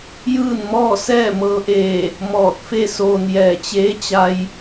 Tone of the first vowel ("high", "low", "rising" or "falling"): falling